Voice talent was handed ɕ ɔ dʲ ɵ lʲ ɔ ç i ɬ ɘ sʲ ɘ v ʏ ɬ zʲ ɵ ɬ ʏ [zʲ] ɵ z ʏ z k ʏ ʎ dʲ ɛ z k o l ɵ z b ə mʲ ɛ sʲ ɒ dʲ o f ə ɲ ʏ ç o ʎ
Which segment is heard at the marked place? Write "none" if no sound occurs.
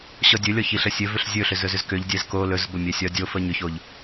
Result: z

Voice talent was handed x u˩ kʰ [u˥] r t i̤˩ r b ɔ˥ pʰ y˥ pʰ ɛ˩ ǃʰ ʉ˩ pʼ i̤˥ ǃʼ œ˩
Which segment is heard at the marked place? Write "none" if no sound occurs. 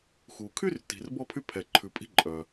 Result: y˥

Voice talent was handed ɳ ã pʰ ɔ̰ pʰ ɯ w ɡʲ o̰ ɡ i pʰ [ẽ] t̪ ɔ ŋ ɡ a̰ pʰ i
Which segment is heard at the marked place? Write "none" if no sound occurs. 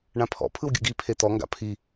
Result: e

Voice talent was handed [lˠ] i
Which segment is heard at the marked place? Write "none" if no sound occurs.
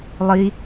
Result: lˠ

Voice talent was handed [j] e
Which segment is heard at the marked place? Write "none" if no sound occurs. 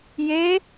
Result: j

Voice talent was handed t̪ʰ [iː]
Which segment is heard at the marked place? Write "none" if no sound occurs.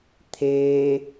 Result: eː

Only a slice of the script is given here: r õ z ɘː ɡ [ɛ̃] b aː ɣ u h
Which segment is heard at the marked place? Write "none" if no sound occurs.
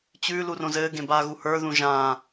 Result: ẽ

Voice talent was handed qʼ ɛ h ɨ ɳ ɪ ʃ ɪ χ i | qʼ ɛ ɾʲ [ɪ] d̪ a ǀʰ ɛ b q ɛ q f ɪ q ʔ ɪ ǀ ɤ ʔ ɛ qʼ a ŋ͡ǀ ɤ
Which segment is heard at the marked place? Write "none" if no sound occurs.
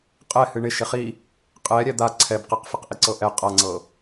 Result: ɛ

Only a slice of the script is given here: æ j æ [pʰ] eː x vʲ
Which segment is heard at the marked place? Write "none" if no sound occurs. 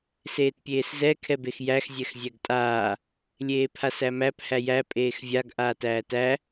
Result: pʼ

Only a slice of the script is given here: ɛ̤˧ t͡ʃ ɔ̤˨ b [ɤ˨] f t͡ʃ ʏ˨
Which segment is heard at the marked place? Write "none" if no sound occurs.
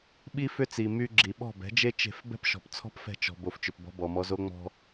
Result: o˨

